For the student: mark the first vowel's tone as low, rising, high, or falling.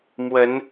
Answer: rising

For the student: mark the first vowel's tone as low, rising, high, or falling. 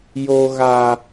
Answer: high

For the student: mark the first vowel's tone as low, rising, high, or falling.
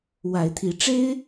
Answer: rising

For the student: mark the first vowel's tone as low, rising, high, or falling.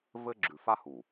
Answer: high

